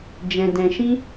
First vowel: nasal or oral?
nasal